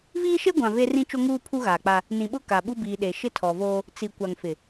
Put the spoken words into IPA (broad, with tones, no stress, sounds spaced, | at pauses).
v iː˦ ʃ e˦ ɡʷ ã˨ v e˦ r ĩ˦ t͡ʃ o˦ ŋ uː˦ pʰ u˦ ɣ aː˨ k͡p a˦ | n ĩ˨ ɓ ʊ˦ k a˨ ɓ u˦ b iː˨ ɗ e˨ ʃ ɪ˦ tʰ ɔ˨ v oː˦ | t͡s i˨ kʷ a˨ ŋ f ɪ˨